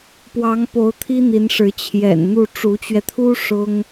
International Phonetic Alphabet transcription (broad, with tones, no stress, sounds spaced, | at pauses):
p w ɑ˧˥ ŋ p o˧˥ ʊ̯ t̪ʰ i˥ n̪ i˧˥ n ʂ ɻ̩˧˥ t͡ɕʰ j ɛ̰˨˩ n n̪ u˥˩ ʈ͡ʂ u˧˥ t͡ɕ ɥ ɛ˧ t̪ʰ u˥ ʂ ʊ˥ ŋ